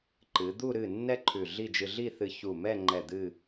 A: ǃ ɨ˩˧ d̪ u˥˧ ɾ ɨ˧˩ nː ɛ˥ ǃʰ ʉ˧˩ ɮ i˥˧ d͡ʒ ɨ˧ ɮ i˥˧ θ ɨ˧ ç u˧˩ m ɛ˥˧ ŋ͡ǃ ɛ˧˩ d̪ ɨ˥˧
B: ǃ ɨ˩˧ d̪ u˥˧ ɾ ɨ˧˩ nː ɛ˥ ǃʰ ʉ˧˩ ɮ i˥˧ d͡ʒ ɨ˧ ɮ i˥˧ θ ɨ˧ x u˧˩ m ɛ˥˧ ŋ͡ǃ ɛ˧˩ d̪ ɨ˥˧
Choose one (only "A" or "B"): A